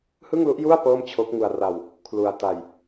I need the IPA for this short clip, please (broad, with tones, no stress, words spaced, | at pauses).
hɯ˥˩ŋlu˦˥ʔju˥˩a̯ pɤː˥˩mt͡ɕʰo˦˥k̚ ŋu˧a̯ra˧w | kʰlu˧a̯ ta˧j